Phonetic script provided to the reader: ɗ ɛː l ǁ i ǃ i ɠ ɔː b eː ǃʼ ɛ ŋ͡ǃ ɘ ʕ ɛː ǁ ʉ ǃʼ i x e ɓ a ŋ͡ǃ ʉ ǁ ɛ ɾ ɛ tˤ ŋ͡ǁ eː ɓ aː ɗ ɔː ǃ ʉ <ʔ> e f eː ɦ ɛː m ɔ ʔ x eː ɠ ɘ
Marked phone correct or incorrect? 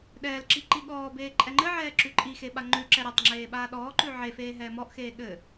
incorrect